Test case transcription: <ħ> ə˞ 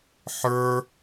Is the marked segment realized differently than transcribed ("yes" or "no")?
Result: no